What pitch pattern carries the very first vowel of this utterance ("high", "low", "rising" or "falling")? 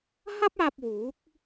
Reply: high